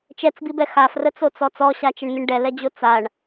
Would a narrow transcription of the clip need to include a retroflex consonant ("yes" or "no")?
yes